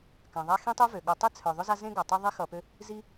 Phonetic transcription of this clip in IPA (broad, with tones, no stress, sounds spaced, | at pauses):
k ã˩ ðˤ a˦ x ĩ˥ tˤ ø˥ v ø˩ ɠ ʊ˨ tˤ e˥ t͡sʰ œ˩ ðˤ ʊ˦ z a˦ z ẽ˦ ɡ a˩ tˤ ʌ˦ ðˤ i˦ x ʌ˨ p ø˦ | z i˥